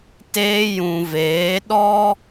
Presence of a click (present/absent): absent